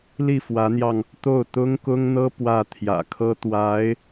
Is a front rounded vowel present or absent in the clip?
absent